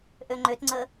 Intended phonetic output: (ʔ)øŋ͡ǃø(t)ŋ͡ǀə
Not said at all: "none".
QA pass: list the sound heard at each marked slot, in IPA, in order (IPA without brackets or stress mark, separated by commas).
ʔ, t